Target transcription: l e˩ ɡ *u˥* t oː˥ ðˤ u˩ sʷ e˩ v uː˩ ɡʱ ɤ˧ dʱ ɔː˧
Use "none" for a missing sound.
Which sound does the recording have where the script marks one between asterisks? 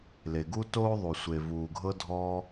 u˥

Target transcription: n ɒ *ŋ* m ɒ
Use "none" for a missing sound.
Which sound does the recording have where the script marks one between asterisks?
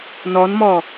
n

